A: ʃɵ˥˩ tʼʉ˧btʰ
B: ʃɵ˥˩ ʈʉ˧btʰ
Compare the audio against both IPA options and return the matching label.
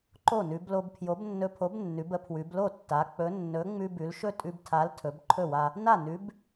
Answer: A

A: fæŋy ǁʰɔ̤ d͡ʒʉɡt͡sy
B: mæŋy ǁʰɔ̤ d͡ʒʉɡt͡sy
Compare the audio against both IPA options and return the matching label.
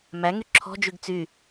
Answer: B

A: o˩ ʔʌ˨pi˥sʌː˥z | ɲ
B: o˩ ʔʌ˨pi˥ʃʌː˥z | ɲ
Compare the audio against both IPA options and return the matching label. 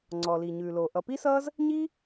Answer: A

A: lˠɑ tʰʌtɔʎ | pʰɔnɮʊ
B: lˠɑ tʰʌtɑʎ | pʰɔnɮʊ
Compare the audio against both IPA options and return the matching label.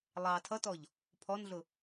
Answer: A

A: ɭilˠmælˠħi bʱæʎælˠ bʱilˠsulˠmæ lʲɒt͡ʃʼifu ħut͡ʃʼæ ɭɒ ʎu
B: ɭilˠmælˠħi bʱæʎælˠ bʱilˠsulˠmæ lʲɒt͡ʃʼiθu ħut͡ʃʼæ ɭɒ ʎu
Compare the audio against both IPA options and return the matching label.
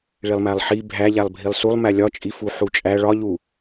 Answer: A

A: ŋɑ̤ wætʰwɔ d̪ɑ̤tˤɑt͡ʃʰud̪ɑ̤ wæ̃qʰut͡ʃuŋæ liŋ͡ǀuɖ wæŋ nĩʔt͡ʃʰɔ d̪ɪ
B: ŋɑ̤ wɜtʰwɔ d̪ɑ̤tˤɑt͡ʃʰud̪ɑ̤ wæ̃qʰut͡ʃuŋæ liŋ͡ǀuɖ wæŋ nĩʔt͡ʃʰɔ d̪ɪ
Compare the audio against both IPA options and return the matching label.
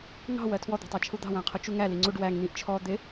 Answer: B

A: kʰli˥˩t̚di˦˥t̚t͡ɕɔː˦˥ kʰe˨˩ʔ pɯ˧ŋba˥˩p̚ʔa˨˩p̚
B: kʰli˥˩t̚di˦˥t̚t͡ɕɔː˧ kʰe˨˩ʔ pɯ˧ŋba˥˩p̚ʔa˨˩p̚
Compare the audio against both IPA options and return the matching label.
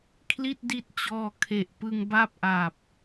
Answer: B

